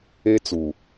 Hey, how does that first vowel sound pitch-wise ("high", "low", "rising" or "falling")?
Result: high